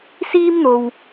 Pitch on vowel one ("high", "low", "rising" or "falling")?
high